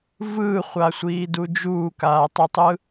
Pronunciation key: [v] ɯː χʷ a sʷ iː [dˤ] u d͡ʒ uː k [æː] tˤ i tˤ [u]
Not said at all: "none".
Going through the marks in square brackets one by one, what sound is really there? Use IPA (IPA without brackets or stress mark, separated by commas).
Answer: v, d, aː, ɯ